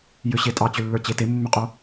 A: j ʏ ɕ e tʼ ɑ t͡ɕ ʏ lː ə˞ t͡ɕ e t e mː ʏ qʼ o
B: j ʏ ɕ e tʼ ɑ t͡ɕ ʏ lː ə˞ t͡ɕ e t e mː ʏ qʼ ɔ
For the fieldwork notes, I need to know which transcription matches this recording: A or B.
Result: A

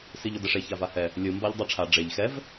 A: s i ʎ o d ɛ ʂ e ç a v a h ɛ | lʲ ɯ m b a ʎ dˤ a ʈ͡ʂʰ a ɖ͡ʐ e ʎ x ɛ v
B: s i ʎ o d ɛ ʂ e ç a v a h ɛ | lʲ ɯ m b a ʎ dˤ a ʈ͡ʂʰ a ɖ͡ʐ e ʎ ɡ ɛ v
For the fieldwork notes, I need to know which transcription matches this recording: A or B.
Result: A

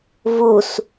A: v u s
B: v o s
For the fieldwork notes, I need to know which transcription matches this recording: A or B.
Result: A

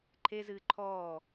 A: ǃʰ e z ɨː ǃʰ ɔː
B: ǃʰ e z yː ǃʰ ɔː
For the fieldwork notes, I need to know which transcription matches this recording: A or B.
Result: A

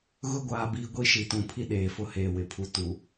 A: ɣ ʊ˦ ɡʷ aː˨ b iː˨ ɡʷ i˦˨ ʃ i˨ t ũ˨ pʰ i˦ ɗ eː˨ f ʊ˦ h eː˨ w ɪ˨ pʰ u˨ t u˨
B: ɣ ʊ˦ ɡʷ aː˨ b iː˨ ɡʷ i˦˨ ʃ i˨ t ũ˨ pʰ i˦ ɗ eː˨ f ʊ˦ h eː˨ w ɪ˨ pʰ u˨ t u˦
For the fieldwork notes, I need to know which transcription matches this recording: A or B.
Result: A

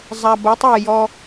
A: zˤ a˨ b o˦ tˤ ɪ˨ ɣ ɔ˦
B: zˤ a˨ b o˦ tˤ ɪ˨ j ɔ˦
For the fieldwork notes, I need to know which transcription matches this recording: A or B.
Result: B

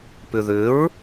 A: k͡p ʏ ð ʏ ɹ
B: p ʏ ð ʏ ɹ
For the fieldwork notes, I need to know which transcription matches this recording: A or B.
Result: B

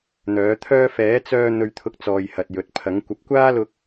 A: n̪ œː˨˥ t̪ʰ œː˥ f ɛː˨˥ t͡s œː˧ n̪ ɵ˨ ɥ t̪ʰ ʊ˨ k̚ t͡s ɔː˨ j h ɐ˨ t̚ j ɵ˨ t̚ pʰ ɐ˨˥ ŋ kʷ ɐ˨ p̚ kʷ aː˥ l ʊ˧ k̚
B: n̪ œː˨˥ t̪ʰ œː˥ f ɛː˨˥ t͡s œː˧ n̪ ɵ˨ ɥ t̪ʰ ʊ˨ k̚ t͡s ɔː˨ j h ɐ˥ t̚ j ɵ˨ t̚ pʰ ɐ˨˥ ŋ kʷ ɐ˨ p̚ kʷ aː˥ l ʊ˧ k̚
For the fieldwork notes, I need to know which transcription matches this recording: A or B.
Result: A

